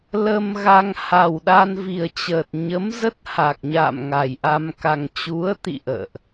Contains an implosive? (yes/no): yes